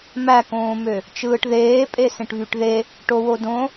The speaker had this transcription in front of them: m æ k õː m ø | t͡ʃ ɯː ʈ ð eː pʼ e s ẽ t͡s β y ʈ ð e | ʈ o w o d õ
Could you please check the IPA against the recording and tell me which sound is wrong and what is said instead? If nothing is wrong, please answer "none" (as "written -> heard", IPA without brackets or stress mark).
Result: t͡s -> ʈ